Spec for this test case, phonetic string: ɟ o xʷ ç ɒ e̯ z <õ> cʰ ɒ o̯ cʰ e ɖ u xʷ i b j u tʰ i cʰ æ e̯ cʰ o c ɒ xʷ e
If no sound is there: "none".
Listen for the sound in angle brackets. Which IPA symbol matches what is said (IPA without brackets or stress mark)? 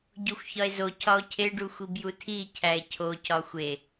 o